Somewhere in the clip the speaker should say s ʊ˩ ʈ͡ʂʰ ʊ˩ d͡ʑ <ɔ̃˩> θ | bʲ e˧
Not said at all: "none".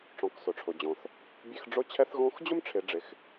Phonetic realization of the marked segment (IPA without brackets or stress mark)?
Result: ɔ̃˩